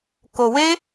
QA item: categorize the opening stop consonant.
plain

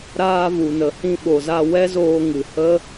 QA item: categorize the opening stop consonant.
implosive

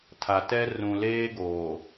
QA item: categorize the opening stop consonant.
aspirated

